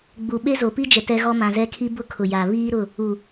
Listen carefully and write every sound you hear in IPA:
ɡ͡b u˨ ɓ e˦ z o˨ p i˦ d͡ʒ ɛ˨ t ɛ˦ ɣ ɔ˦ m ã˨ z ɛ˦ kʰ i˦ b ʊ˦ kʰ ʊ˨ j a˨ β iː˦ ɾ ʊ˦˨ | u˨

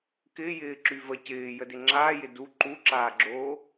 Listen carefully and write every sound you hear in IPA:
k ɪː j ɪː ǁ y v ə c ɪː j ə d ɪ ŋ͡ǁ aː j ɪ d u ǃ u ǁ aː ɡ͡ǁ oː

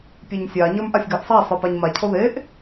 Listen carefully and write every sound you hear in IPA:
pʲ e ɲ sʲ a ɲ ə˞ m ʔ a sʲ ɡ a ʔ sˤ a sˤ ə˞ p a ɲ m a cʰ o ð e ʔ

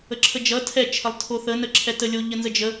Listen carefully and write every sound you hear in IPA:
ə ǁʰ ə d͡ʒ ʌ tʰ ɛ t͡ʃʰ ə lˠ tʰ o θ ə n ə ǁʰ ɛ t ə lʲ o ʎ ə n z ə d͡ʒ ə

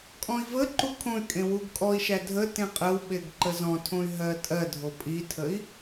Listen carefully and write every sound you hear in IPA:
kʼ ɔ̃ i̯ v ə ǃ u kʰ õ y̯ kʼ ẽ w u ɡ kʼ ɔ i̯ ʃ æ dʱ ə t ẽ qʼ ə w ɓ e ɡ ǃ ə z ɔ̃ tʰ õ y̯ ɦ ɜ tʼ ɜ dʱ o pʼ i tʰ ə i̯

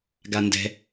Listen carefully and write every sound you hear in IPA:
ɡ a n d ɛ̤

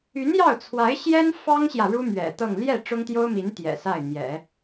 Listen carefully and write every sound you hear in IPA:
y˧˥ n j ɑ˥˩ ʊ̯ t͡sʰ w a˧˥ ɪ̯ ɕ j ɛ˥ n f ɑ˥ ŋ ɕ j ä˨ ɻ u˥ m ɥ ɛ̰˨˩ t̪ ɤ˥˧ ŋ l j ɛ˥˩ ʈ͡ʂ ʊ˥ ŋ t̪ j o˥ ʊ̯ m i˧˥ n t̪ j ɛ̰˨˩ s a˥˩ ɪ̯ n̪ j ɛ̰˨˩˦

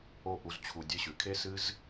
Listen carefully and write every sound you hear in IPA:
o˦˨ ʔ u˧ z t͡ɕʰ u˧ dʲ ɨ˧ ɕ ʉ˨ kʰ e˦ s ɨ˦ z

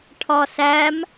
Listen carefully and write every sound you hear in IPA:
ʈʰ ɒ s æ m

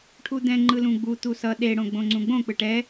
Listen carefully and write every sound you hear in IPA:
ʈʰ u d̪ ɛ̃ ŋ͡ǃ ɯ l ũ ɡ͡b u t̪ u s ʌ ɗ e ɽ õ ɡ͡b õ ŋ͡ǀ ũ ɡ͡b õ k͡p ɯ ʈ ɛ

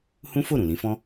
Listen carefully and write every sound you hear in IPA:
h ũ˦ f o˦˨ ɾ ũ˨ l ĩ˨˦ f ɔ̃˦

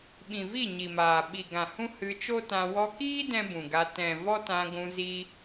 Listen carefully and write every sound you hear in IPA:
ɓ ĩ˨ v i˦˨ ɲ i˨ m aː˨ ɓ i˨ ɡ ã˨ h ũ˦ h ɨ˧ t͡ʃ o˦ t ã˧ w ɔ˧ k iː˦ d ɛ̃˦ b ũ˨ ɡ a˧ t ɛ̃˨ v ɔ˦ t ã˧ ɡʷ ũ˧ z i˦

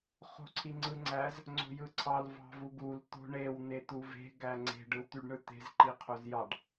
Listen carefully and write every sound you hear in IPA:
χ o̤ ǀʰ i ŋ͡ǀ ɯ ŋ͡ǀ æ z | ŋ͡ǀ o̤ j ɯ ǀʰ ɑ l v ɑ̤ v u ɡ u l t̪ o̤ ɳ e w n̪ e t̪ u v e̤ ɡ æ ŋ͡ǀ e̤ ɖ ɯ w t̪ y ɖ ɳ ɯ t̪ e̤ z ǃ i qʰ o z j ɑ ɖ

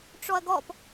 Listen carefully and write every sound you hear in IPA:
ʈ͡ʂ ɔ ɐ̯ ɡ ɔ p

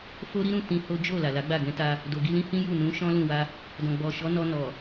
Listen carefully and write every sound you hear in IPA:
f o˦ ɾ i˦ ɾ ũ˦˨ t ĩ˧ h o˦ d͡ʒ o˦˨ l a˨ l a˨˦ ɡ͡b a˦˨ ɡ ɛ̃˨˦ t a˧ | d o˨ ɡ i˧ l ĩ˦ h ĩ˦ j u˦˨ n ũ˨˦ ʃ ɔ̃˦ l ũ˦˨ w a˧ | d ɔ̃˨ ɡ͡b ɔ˨ ʃ ɔ˨˦ n ɔ˧ n ɔ˨

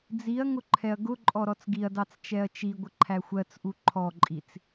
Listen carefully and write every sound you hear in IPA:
d͡z i ɐ̯ ŋ ʊ ǃʰ ɛ ɐ̯ ɡ ʊ ǃʼ ɔ ɾ ɔ t͡s ɡ i ɐ̯ d ɑ t͡s t͡ʃ ɛ ɐ̯ t͡ʃ i ɡʷ ə ǃʰ æ xʷ ɜ t͡s ʔ u ǃʰ ɔ ǃʼ i t͡s

